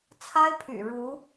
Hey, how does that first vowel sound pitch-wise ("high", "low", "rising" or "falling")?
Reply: high